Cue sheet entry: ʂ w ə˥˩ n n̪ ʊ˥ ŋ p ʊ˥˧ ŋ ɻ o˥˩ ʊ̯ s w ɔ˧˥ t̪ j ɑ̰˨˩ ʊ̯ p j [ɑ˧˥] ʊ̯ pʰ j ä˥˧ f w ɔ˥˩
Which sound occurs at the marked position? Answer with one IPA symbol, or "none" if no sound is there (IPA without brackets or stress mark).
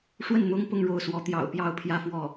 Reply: ɑ˥˧